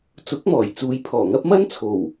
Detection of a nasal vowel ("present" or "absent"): absent